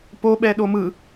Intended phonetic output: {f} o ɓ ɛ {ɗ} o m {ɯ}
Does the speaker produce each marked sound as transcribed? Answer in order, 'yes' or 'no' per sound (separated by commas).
no, yes, yes